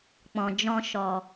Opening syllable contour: low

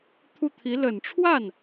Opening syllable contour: falling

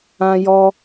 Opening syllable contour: high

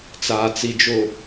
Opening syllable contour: low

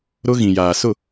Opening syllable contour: high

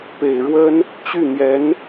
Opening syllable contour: low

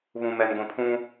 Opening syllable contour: low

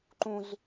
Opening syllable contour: high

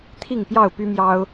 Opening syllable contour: falling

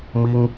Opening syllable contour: high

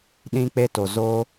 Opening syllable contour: high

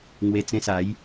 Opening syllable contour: low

